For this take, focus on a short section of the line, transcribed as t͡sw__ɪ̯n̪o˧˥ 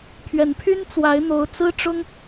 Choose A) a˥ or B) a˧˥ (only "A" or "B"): B